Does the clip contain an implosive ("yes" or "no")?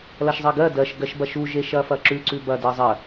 no